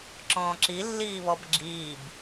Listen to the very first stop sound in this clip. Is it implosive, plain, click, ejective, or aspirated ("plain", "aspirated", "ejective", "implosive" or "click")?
click